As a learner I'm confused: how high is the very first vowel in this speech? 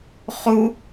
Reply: high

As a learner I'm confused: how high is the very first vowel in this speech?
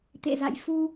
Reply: mid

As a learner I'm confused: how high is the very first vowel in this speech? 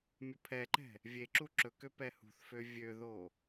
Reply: mid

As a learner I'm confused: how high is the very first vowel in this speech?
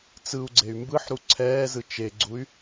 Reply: high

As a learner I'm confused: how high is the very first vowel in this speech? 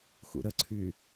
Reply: high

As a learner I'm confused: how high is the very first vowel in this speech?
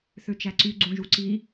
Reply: mid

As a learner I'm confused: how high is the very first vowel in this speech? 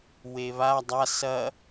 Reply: mid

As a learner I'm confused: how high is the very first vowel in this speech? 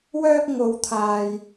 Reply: mid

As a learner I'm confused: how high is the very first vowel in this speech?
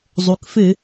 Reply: high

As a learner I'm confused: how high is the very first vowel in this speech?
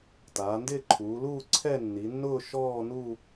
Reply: low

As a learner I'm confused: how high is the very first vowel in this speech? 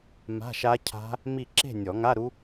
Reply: low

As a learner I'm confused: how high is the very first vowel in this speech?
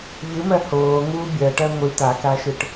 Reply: high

